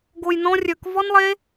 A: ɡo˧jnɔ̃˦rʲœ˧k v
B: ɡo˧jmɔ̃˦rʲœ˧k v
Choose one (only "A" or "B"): A